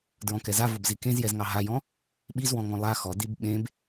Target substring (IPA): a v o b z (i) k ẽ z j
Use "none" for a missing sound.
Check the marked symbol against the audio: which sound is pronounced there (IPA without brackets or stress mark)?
i